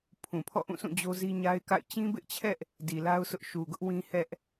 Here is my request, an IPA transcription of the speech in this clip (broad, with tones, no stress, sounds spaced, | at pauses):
pʰ ũ˨ pʰ ɔ̰˦˨ ʔ ũ˦˨ s ũ˦˨ d͡ʑ o˦ z i˦ ɲ a˦ ɪ̯ k a̰˦˨ ɪ̯ t͡ɕ ĩ˦ b ɪ˦ ʔ t͡ɕʰ ɛ˦ ʔ | d i˨ l a˦ ʊ̯ s ʊ˦ ʔ ʃ u˨ ɡ ʊ˦ ʔ w ĩ˦ h ɛ˦ ʔ